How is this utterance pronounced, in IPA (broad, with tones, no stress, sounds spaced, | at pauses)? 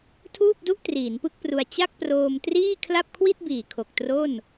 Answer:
tʰ uː˥˩ p̚ d u˥˩ ʔ t r iː˩˦ n p ɯ˥˩ k̚ p r u˧ a̯ t͡ɕ a˥˩ k̚ p r oː˧ m t r iː˥˩ kʰ l a˥˩ p̚ kʰ w i˥˩ t̚ b iː˨˩ kʰ o˨˩ k̚ t r o˥˩ n